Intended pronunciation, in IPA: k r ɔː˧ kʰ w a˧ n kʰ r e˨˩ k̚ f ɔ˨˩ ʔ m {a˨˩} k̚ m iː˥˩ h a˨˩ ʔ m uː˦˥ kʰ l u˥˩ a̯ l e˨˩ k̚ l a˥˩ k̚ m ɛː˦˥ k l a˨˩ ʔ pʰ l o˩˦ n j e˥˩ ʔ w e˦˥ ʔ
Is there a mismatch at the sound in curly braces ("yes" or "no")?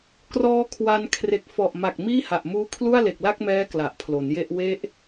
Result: no